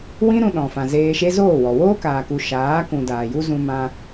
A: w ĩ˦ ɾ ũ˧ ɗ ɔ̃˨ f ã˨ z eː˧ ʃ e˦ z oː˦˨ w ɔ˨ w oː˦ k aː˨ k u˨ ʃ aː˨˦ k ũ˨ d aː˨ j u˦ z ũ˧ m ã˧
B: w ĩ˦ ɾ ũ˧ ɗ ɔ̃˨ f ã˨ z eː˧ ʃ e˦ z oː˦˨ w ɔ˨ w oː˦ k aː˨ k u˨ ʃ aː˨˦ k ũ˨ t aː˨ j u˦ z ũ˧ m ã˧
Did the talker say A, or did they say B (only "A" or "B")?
A